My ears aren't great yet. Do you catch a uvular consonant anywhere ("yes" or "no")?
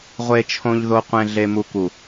yes